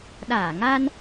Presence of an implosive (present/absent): present